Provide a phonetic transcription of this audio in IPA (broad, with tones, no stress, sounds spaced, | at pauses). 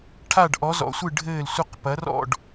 ʈʰ a˦˨ ɖ ʔ ɔ˨˦ z ɔ̰˨˦ sʷ ɨ˦˨ ɖʱ ɘː˦˨ l sʷ ɨ˦˨ q p ɐ˨˦ r ɔ̰˦˨ ɖ